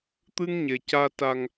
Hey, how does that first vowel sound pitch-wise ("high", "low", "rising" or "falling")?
high